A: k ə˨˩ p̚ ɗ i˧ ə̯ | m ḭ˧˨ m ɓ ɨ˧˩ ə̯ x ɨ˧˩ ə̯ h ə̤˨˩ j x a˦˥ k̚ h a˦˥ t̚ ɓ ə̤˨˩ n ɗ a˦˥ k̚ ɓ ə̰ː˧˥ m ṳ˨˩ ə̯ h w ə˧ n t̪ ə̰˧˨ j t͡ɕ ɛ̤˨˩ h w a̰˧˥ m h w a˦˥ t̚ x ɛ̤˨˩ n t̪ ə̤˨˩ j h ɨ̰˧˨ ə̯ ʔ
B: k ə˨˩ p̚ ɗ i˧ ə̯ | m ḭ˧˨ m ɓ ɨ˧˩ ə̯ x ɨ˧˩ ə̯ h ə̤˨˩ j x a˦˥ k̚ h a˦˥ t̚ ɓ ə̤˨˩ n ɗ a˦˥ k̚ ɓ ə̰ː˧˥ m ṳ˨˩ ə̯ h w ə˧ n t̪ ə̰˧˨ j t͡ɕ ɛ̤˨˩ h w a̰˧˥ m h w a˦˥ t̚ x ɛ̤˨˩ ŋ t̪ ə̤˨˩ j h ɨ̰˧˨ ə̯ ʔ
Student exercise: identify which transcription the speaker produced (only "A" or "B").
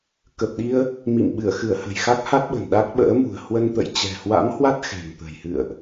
B